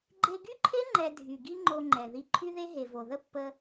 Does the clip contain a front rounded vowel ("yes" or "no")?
yes